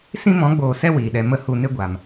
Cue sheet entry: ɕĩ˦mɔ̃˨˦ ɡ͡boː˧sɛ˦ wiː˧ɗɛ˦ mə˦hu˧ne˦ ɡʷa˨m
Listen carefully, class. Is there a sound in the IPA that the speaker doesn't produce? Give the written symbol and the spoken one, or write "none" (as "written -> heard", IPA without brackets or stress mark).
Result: ɕ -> s